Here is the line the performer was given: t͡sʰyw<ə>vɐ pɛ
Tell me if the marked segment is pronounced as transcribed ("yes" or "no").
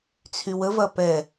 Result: yes